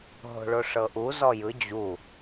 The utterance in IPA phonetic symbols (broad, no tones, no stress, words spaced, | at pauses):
ɦo̤ɭoʂɤʔu zɔjɯ d͡ʑu